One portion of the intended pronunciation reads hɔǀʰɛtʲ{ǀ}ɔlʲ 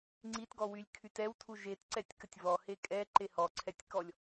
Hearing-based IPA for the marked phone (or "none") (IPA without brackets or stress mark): k